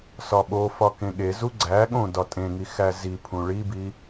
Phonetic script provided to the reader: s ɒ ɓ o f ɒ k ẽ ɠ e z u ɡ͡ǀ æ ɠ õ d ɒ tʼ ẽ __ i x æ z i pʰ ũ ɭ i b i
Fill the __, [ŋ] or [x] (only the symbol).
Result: ŋ